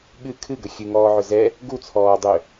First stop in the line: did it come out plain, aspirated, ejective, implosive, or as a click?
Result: implosive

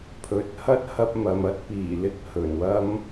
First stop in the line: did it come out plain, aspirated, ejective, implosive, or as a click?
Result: aspirated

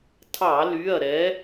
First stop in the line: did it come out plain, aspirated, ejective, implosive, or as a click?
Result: aspirated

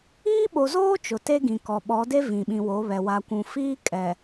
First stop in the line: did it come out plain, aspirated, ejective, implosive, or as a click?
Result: implosive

